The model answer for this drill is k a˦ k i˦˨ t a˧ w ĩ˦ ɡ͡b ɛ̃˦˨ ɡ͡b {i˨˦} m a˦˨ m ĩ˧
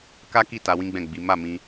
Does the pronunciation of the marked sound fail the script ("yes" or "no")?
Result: no